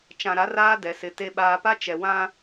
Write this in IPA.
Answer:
t͡ʃ ã˨ ɾ a˨˦ r aː˦ d ɛ˨ s ɪ˨ t e˨ ɓ aː˨ p a˦ t͡ʃ ɛ˨ w ã˦

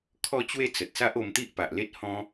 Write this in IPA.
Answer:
kʰ ɔ˥˧ t͡ɕ w e˥˧ t͡s ə˨ t̚ s a˦ ʔ o˧ m t̪ i˦ ʔ p a˨ ʔ l e˦ t̚ h ɔ̃˦

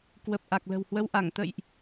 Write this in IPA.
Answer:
k w ə˨˩ p̚ ʔ a˨˩ k̚ l ə̤˨˩ w h w ə˧ w ʔ a˧˩ ŋ t̪ ə̰˧˨ j ʔ

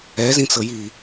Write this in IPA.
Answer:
ɛ z ĩ t͡s ɤ j i

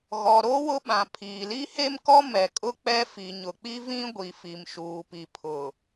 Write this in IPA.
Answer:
ɣ ɔ˨ ɾ o˦ w ʊ˦ ɓ ã˨ pʰ iː˨ l i˦ h e˦ m k ɔ˦ m ɛ˨ kʼ ʊ˦ k͡p ɛ˦ f i˨ ɲ ʊ˨ k͡p i˦ v ĩ˦ ɡʷ i˨ f i˨ m ʃ uː˨ p i˨ pʰ ʊ˨

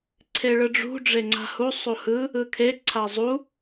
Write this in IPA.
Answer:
ǀʰ e ɭ ɯ ɖ͡ʐ ṳ ɖ͡ʐ e ŋ͡ǀ a̤ h u sˤ u h ɯ | ɯ kʰ e ǀʰ a zˤ u

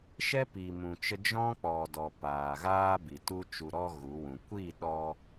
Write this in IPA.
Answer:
ʃ ɛ˦ p i˨ m ũ˨ t͡ʃ ə˧ d͡ʒ ɔ̃˦ k͡p ɔ˨ d ɔ˨ p aː˨ ɣ aː˦ b i˨ t u˦ t͡ʃ u˨ ɾ ɔ˧ ɣ u˨˦ w ũ˨ kʷ i˦˨ ɗ ɔ˧

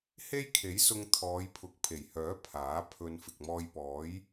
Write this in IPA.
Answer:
h e˥ j kʰ e˨˥ j s ʊ˧ ŋ t̪ʰ ɔː˨˧ j pʰ ʊ˨˥ k̚ pʰ e˨˩ j h œː˨˥ pʰ aː˨˥ pʰ ɵ˧ n f ɪ˨ k̚ m ɔː˧ j p ɔː˨˥ j

